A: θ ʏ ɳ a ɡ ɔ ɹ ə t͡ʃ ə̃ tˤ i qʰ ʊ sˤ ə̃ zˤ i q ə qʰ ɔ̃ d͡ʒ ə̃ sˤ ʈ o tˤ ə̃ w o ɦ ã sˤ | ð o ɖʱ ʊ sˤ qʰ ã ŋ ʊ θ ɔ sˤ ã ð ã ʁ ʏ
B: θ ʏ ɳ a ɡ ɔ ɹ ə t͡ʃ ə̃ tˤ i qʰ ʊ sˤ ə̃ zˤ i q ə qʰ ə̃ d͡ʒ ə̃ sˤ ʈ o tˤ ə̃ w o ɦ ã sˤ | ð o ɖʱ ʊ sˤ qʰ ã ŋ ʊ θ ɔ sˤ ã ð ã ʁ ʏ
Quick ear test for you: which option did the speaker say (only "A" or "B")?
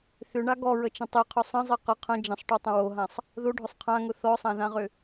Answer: B